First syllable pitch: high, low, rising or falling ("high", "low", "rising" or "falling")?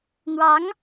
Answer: rising